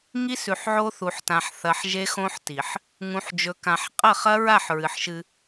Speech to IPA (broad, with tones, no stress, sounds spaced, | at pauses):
ŋ i˦ s ʉ˨ ħ ʕ o˦ θ u˨ ħ t ã˨ ħ θ ɐ˨ ħ ʒ e˦ x õ˦ ħ t i˨ ħ | ŋ ũ˨ ħ d͡ʒ ɵ˨ k ã˨ ħ qʼ ɐ˦˨ χ ɐ˦ ɹ a˦˨ ħ ɹ ɨ˨ ħ ʃ ɨ˦